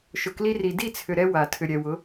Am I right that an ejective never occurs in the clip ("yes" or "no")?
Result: yes